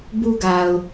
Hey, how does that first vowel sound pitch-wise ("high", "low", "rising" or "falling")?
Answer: high